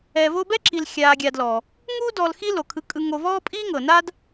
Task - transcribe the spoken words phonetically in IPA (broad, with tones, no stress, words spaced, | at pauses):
ɛ˨vo˦bɛ˥ǁi˨l xʲaː˨ɡʲa˨dlɔ˩ | ŋu˥ dɔ˨lxi˦ lo˩kʰɯ˨kʼɯ˨ ŋo˨vɔː˦ pʼiː˥ ŋɤ˩na˥d